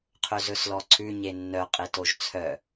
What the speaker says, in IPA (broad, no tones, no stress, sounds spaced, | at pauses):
qʰ ɵ z ɵ s l ɔ ǀʰ ʉ ɲ e nː œ qʼ e t o ʒ t͡sʰ œ